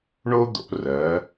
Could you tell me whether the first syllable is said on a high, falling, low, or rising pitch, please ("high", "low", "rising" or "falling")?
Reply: high